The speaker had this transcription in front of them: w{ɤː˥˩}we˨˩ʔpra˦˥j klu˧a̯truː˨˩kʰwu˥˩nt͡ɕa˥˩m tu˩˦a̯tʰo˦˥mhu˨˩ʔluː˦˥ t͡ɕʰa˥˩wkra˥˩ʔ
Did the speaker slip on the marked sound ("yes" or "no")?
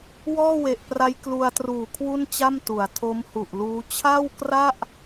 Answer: yes